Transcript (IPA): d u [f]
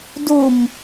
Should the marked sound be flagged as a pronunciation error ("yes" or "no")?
yes